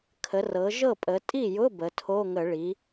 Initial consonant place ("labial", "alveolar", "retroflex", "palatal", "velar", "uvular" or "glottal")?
velar